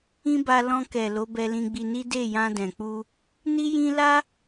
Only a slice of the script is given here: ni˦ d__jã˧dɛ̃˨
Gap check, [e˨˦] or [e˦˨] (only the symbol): e˦˨